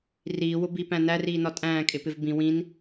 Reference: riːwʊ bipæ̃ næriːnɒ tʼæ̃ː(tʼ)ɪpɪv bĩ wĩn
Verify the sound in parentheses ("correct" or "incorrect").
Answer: incorrect